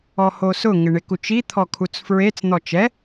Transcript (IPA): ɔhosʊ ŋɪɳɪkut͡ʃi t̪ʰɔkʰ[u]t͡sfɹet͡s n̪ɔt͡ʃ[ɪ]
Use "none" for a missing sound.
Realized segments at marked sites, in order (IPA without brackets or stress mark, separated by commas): u, ɛ